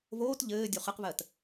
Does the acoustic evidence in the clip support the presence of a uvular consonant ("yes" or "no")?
yes